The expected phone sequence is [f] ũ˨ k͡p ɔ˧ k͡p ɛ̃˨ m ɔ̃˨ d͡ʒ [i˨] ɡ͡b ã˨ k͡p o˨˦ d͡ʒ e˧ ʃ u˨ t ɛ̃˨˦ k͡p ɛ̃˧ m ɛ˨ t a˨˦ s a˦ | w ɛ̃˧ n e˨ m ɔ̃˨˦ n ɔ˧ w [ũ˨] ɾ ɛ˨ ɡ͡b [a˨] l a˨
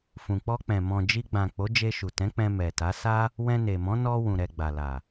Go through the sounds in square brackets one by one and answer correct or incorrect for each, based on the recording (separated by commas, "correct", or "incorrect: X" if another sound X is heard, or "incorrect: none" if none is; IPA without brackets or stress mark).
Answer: correct, incorrect: i˧, correct, correct